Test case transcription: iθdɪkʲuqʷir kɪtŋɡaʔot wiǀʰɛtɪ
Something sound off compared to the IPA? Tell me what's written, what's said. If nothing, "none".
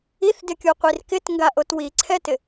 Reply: none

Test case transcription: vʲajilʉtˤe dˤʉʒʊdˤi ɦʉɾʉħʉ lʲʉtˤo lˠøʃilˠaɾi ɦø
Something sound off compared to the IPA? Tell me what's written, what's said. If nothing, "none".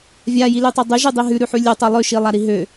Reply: ʊ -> ʉ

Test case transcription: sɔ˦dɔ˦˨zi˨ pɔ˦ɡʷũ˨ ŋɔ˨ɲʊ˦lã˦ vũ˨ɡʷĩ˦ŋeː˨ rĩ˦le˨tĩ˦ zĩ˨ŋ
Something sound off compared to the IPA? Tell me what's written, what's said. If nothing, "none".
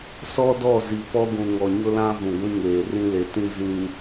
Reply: none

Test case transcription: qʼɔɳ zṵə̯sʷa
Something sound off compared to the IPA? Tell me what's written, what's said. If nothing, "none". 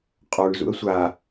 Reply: none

